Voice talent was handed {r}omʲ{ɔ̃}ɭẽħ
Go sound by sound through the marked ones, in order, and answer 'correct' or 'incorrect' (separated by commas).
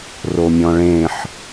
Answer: correct, correct